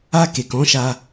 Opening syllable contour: high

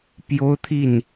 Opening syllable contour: high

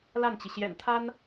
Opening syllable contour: falling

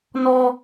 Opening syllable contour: high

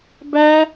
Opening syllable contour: high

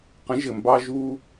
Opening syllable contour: rising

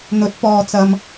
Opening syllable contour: rising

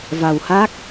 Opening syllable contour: low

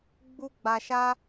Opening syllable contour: high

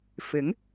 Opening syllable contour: rising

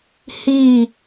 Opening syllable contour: falling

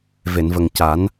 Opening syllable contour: low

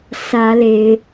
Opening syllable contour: rising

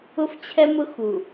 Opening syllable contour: high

